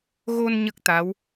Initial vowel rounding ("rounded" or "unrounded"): rounded